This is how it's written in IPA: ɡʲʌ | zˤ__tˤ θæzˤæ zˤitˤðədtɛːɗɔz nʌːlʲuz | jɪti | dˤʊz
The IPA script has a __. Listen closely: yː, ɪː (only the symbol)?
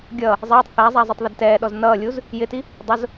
ɪː